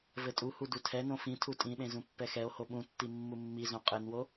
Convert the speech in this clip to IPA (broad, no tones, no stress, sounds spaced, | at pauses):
v ɘ tʼ u h u d u tʰ ɛ n õ f ĩ tʰ u tʼ ĩ ɗ ẽ z ũ pː ɛ x ɛ o̯ h o ɓ ũ tː i mː u mː i z õ qʼ ɘ n w o